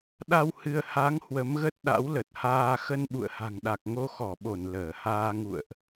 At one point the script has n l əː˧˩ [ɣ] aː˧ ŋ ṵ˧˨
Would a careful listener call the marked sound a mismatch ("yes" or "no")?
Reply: yes